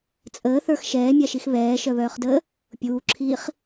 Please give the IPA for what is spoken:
t͡sʼ əː θ ə˞ x ʃ ɛː mʲ a ʃ i x β ɛː ʃ œ β œː χ d əː | pʲ uː ǁʰ iː χ

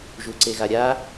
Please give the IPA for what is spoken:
ʒ u ǀ e ɣ a ɾʲ a

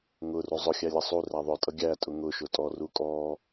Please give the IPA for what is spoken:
ŋ ʊ r u zˤ ʊ xʲ æ lʲ ʌ sˤ u r æ ðˤ ʊ tʼ ʌ ɡʲ æ tʼ ʊ ŋ ʊ ʃ ʊ tʼ ɔ r u kʼ ɔ

